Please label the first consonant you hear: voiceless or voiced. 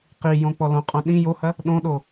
voiceless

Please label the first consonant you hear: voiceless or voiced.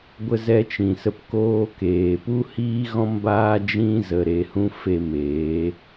voiced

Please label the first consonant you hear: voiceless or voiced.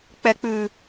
voiceless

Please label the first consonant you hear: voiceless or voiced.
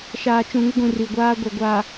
voiceless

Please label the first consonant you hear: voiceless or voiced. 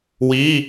voiced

